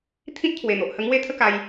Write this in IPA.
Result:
t̪ʰĩ˦t̚t̪ʰwe˨˩n̪o˨ʔhə˧ ŋwe˥˧t̪ʰə˦ka˧j

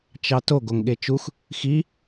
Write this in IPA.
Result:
t͡ʃɑto ɡoŋɠet͡ʃux | xi

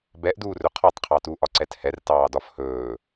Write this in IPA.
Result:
bɛʔduːrɵ qʰɒtˤqʰɑtuːʔ ɒǀɛthɛr tɑːdɒfhɵː

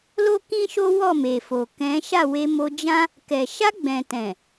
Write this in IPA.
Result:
lo˦kĩ˦ʃo˦ wɔ˦˨me˨fo˨ kɛ̃˨˦ ʃa˦˨we˧mo˧d͡ʒã˦ | kɛ˨ʃa˧ɡ͡bɛ̃˨tɛ̃˨

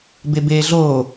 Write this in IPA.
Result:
bebeːɮoː

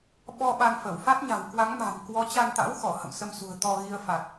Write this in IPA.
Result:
ɓɔ˧ ɓa˧nfə˧˩w fa˦˥t̚ɲa̤˨˩wkwa˨˦ŋma̤˨˩m kwɔ˨˦t͡ɕa˧n t̪a̰˧˥wxɔ˧˩ hə̰˧˨msə˧msṳ˨˩ə̯ t̪ɔ˧ɣi˧ə̯ fa˨˩t̚

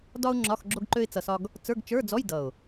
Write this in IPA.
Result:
dɒ˥ʊ̯ŋ͡ǁɒ˧˥˧x ɡ͡ǁo˥ɡǃø˥ɪ̯t͡sʌ˧sɒ˥ɡ | t͡sə˞˧˥˧ɡt͡ʃə˞˧˥˧d͡zɔ˧˥˧j dʌ˨˩ʊ̯

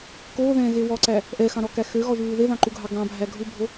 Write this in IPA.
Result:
koːðɛ̃ːɣe wɔǀæ | ʔɛxɑ̃ɾɔkæ xøɣɔʒuː ðeðɑ̃ǃuɡʱɑ ɡɑ̃bʱæ ɡʱubʱo

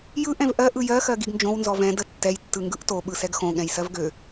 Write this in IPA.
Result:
jɯ ʔɛ̃vʔɜ ʔɯjɜ xɜɡiɡnd͡ʒõw nzɔvɛ̃ dətːɛj tːɯŋɡɯʔto ɓɯsɛɡxõ ɠɛ̃jsɜvɡø

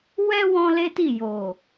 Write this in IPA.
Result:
wɛ˦ wɔ̃˦le˦ti˦˨ jo˨

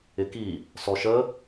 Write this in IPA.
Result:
ɪki | sɔʃə

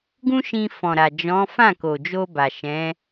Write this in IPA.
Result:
ɡũ˦ʃĩ˧fɔ̃˨ ɾa˨d͡ʒɔ̃˨˦ fã˦˨ko˨d͡ʒo˧ ba˨ʃɛ̃˨˦

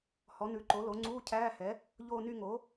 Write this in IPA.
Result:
hɔ˩˥nʉ˩˥ǃo˩˥lo˩˥ ŋ͡ǀuː˧˥˧cʰæː˧˥˧hɛ˩˥ | ʎoː˥˧ny˥˧ ŋo˩˥

